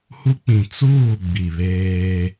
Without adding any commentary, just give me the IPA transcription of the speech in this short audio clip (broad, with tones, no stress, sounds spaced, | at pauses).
h u˦ k͡p ĩ˨ t͡s uː˦˨ ɡ͡b i˨ β eː˦